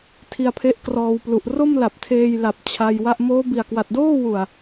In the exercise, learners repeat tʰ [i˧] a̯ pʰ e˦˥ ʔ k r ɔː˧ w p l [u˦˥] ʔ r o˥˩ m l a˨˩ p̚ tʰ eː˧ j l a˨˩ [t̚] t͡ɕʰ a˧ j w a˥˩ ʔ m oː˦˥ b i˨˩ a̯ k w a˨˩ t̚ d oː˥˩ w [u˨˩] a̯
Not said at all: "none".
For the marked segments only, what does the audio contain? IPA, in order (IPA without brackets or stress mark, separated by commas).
i˧, u˨˩, p̚, u˨˩